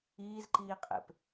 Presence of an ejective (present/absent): present